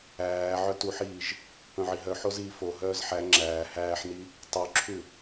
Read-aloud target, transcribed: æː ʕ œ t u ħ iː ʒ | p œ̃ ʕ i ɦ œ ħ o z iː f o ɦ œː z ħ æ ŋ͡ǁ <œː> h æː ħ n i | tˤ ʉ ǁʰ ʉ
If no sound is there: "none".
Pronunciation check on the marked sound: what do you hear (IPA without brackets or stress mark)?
æː